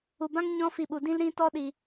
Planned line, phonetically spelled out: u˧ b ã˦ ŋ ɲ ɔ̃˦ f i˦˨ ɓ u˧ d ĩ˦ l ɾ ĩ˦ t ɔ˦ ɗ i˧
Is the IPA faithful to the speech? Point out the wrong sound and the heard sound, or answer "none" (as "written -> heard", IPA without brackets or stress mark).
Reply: none